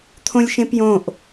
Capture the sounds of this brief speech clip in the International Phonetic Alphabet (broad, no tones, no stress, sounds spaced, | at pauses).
t̪ʰ õ lʲ ʃ ẽ p j õ ʔ